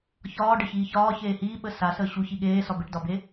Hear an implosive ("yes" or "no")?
yes